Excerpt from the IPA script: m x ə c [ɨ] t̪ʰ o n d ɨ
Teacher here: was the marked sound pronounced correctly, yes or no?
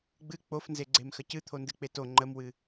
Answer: yes